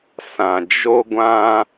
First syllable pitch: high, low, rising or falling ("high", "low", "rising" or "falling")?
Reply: low